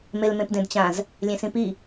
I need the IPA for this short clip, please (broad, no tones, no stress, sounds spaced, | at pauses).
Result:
m e l m ẽ p d ẽ d t͡ɕ ã z | lʲ ẽ s ĩ p i